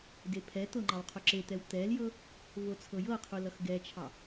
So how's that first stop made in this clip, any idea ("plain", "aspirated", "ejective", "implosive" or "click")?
plain